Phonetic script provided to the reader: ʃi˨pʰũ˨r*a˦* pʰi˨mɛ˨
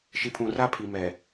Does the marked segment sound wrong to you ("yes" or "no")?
no